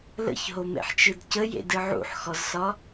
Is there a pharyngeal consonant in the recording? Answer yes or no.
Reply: yes